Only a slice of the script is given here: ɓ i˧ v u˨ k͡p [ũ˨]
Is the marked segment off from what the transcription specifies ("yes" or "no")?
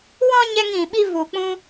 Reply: yes